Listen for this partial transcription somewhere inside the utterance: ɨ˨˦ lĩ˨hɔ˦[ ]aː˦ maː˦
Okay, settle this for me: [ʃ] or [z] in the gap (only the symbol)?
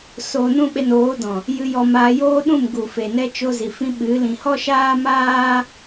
ʃ